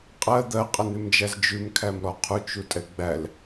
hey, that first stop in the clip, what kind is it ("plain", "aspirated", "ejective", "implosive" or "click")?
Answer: ejective